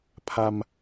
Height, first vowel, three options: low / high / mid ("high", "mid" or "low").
low